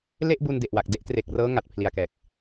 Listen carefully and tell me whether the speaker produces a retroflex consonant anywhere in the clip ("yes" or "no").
no